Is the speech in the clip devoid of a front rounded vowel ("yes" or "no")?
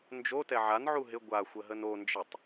yes